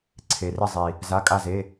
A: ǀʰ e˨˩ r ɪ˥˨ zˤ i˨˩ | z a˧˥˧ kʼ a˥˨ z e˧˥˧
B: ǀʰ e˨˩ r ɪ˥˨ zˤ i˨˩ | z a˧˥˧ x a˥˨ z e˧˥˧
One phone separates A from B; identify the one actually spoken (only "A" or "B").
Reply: A